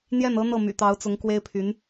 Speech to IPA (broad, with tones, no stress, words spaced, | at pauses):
n̪jɛ˥˩nɤ˥n̪ɤ˥˩ my̰˨˩t̪ɑ˧˥ʊ̯t͡sʊ˧˥ŋ kwe˥ɪ̯pʰy˧˥n